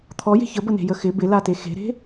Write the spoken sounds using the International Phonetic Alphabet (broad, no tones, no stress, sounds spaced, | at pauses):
t̪ʰ ɔ j e̤ ç ə b ə n e̤ j ə x ɪ b ɪ l a t e x e̤ ɾ e̤